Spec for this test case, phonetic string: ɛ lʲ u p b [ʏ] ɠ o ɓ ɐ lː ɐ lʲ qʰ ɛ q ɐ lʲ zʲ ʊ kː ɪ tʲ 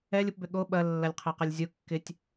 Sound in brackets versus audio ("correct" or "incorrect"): correct